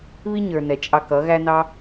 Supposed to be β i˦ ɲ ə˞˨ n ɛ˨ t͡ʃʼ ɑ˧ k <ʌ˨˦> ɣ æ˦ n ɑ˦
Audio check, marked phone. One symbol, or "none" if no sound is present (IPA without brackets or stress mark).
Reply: ʌ˨˦